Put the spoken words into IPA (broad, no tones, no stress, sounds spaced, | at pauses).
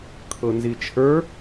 kʰ ɤ n z i t͡ʃʰ ə˞